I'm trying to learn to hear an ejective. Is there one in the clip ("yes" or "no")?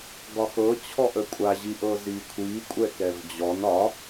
yes